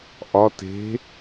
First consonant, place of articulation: glottal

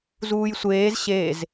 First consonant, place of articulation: alveolar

